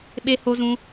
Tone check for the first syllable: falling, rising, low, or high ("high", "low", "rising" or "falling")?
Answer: high